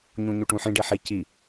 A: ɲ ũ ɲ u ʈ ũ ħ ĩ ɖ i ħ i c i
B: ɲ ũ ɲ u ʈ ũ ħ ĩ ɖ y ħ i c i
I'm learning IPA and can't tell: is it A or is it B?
A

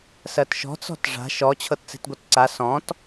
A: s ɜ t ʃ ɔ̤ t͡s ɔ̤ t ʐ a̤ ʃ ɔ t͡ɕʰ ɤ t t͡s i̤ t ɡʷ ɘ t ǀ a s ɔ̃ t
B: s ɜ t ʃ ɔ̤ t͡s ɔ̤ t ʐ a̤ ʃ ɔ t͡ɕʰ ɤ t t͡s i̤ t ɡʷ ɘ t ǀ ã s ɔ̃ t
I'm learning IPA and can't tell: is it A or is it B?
A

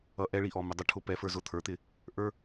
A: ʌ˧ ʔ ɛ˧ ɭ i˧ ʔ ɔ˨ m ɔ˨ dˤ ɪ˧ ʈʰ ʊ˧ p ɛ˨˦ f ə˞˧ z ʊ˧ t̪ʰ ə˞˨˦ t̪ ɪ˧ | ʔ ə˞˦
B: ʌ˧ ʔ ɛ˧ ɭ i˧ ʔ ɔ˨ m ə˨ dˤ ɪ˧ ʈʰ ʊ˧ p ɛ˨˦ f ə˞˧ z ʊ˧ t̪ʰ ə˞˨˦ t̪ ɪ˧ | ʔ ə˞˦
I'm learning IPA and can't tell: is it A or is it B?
B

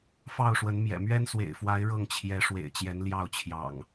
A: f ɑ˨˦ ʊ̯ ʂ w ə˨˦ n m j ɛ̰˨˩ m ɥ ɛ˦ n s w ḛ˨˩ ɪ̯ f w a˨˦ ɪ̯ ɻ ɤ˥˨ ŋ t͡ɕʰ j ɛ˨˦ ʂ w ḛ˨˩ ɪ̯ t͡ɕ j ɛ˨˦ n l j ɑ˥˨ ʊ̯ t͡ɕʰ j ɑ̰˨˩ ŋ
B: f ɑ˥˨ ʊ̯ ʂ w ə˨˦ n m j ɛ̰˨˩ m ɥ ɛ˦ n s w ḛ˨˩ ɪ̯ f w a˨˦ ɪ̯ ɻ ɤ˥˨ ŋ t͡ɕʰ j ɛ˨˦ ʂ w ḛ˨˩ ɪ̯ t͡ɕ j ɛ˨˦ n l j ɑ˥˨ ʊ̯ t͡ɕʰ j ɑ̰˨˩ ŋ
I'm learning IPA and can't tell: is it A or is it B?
B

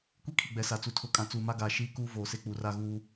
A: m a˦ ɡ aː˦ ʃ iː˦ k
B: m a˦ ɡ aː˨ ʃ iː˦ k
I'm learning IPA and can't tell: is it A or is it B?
B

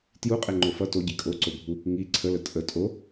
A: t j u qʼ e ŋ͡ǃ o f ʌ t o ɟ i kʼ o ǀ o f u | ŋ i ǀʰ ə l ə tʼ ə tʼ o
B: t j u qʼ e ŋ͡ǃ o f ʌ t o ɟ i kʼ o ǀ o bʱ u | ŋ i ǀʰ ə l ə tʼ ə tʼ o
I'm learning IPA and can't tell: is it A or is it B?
B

